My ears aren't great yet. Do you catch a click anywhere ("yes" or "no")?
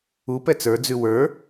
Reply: no